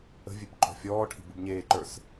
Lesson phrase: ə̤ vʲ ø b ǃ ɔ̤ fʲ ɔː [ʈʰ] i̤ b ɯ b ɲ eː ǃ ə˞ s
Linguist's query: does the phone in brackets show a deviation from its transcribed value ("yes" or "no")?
no